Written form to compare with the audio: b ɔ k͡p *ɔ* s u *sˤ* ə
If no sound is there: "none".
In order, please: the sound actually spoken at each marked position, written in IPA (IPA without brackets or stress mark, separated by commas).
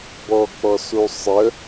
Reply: ɔ, sˤ